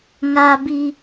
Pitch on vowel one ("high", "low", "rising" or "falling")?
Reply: high